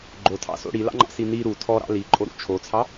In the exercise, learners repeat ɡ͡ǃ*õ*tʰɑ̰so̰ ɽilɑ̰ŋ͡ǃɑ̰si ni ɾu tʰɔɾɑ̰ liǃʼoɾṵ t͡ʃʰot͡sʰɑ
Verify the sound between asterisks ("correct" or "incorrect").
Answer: incorrect